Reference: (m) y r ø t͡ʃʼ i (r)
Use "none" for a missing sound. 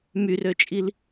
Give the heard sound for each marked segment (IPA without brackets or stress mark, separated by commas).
m, l